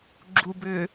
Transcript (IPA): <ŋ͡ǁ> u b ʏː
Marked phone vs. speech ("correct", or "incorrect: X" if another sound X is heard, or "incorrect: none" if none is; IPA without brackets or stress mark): incorrect: ɡ͡ǁ